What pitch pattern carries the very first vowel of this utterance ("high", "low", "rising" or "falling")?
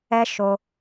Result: high